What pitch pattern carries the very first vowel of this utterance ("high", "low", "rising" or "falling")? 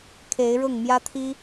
rising